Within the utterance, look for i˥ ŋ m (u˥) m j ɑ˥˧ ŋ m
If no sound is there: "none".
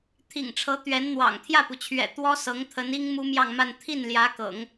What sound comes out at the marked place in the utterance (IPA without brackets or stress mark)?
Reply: u˥